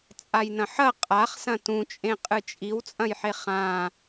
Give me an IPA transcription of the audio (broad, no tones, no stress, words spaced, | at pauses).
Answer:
t͡sʼajnɐ̃ħɐ qʼaχ sɐ̃tũt͡ʃʼẽ qʼɨt͡ʃʼiwt͡sʼɐ̃jħe χã